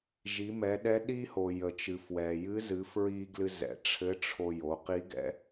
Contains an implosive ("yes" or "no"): yes